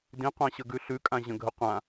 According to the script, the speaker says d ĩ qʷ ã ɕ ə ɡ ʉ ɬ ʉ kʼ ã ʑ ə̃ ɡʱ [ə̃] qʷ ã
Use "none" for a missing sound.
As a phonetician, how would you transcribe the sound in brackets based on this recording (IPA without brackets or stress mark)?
ə